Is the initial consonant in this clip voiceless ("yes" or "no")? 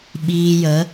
no